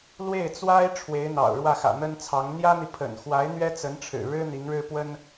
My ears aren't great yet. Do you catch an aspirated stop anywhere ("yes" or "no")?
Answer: yes